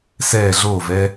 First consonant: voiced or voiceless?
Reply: voiceless